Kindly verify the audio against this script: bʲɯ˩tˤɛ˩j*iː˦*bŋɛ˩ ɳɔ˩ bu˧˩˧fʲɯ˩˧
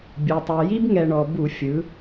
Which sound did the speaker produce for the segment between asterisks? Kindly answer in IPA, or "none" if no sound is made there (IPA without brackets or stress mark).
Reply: i˦